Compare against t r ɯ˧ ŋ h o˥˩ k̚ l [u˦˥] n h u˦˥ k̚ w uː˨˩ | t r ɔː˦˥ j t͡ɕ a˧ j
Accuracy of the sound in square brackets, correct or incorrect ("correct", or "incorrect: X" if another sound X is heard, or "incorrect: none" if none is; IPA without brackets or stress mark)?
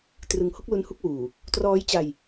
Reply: correct